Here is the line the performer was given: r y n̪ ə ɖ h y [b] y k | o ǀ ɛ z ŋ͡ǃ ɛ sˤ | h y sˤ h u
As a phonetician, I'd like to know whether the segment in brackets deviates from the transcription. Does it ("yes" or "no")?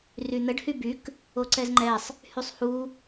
no